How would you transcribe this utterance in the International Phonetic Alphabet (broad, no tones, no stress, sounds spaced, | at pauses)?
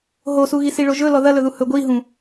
ɦ o s u ɣ i s i ɭ o ʒ ɵ l ɔ ð ɐ l ɵ ð u h ɵ ɡʷ i ɦ ũ